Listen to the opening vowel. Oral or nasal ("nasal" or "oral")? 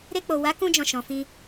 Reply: oral